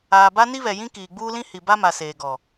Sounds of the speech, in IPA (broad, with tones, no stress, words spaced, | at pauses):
aː˨ba˦ ni˦βɛ˨ jĩ˦ kiː˨ɡ͡buː˦lĩ˦ hi˨ba˦ma˨ seː˨ɡɔ˨